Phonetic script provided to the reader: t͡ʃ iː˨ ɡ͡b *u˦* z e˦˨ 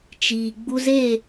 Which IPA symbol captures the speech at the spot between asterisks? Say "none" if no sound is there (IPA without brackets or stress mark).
u˦